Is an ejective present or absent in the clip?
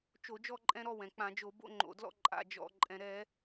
present